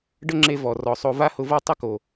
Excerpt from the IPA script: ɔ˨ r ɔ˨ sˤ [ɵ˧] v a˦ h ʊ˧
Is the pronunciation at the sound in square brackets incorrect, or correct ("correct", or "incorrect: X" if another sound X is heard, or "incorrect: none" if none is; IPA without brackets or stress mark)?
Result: incorrect: o˧